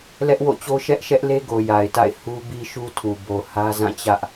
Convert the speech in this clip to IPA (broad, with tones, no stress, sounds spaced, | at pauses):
l ɛ˦ ʔ w o̰˦˨ t͡ɕ o˦ ʃ ɛ˦ ʔ ʃ ɛ˦ ʔ l e˦ ɡ o˨ j a˨ ɪ̯ t a̰˦˨ ɪ̯ h u˦ b i˦ ʃ u˦ tʰ u˨ b o˨ h ä˦ z ã˦˨ t͡ɕ ä˦ ʔ